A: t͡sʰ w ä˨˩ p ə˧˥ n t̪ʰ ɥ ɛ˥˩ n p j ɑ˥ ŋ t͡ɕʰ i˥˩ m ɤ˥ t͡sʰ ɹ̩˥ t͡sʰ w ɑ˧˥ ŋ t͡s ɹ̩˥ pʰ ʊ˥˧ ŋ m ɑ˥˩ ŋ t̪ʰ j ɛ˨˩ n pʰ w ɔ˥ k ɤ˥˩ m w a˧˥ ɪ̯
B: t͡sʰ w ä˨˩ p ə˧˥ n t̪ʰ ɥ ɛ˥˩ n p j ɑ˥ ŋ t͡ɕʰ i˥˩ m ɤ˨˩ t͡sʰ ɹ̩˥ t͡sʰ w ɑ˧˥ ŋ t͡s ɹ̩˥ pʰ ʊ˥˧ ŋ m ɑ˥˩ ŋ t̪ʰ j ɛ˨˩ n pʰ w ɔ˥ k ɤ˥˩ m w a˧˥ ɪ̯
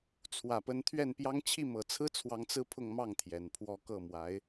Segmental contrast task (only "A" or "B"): B